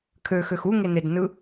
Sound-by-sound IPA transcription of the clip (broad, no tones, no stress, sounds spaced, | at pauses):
kʰ ø x ø x u ŋ e n e d n ɯ